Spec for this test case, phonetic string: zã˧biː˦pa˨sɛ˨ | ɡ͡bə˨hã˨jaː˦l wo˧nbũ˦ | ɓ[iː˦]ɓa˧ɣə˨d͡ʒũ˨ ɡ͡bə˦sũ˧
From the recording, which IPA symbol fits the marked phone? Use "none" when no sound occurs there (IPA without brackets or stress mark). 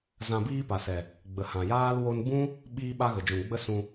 iː˧